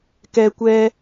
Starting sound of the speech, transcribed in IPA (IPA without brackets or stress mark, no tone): k